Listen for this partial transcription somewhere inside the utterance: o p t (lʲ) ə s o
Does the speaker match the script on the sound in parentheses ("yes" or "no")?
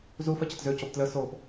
no